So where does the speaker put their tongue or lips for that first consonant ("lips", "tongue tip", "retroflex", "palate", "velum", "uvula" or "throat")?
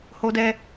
throat